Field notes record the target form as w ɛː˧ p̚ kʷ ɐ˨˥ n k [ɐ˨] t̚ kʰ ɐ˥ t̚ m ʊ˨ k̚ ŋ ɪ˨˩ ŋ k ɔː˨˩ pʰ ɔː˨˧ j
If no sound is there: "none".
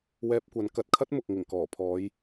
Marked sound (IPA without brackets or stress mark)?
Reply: ɐ˨